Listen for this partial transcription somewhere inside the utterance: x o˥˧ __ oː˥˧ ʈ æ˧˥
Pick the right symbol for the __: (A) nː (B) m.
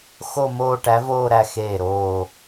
B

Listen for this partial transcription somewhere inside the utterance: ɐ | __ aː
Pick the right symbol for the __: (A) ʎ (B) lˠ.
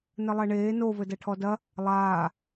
B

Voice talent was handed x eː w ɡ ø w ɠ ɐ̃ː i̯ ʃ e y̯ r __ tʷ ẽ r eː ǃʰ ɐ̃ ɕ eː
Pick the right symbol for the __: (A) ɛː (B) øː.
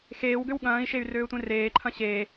B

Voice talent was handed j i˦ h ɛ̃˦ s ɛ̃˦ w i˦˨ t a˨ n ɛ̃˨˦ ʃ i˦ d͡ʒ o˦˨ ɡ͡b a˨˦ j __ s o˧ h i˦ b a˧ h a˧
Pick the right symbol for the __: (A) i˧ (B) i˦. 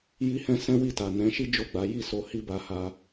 B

